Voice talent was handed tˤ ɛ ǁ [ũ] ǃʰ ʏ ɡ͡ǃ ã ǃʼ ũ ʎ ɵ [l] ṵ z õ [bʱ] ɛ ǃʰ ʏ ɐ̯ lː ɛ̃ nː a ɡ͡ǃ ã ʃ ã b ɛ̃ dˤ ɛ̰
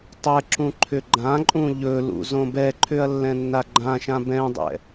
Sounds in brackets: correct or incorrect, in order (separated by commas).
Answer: correct, correct, incorrect